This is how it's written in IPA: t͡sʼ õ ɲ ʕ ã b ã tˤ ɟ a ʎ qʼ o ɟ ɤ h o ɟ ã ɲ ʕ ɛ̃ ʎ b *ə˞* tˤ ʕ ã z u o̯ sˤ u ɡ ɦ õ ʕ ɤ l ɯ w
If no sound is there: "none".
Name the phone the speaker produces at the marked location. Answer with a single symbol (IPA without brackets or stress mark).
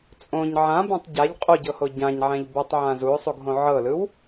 ɤ